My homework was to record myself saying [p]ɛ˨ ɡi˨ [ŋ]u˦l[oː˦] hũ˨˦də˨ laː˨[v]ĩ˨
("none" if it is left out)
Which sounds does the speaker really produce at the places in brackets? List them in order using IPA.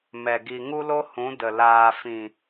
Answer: m, ŋ, o˦, f

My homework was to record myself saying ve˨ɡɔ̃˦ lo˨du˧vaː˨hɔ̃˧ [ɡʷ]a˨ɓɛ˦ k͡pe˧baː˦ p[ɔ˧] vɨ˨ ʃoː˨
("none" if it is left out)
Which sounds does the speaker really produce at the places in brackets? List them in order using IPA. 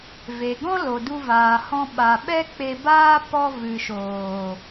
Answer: ɓ, ɔ˧

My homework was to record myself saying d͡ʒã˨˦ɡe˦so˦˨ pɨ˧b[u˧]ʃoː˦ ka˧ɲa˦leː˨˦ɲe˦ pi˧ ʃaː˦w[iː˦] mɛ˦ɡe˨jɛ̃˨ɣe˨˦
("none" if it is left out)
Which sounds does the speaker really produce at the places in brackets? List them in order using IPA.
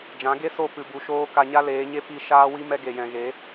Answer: u˧, i˦

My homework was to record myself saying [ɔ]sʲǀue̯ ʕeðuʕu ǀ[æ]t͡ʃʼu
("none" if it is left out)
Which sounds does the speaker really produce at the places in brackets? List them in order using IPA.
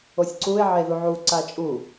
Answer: o, a

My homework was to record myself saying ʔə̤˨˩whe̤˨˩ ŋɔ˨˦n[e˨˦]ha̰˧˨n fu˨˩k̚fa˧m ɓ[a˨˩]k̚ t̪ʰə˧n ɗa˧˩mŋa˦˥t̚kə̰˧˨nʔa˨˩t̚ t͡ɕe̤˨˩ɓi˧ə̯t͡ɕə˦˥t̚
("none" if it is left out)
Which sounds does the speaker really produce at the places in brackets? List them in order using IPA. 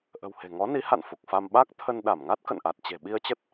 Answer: i˨˦, a˦˥

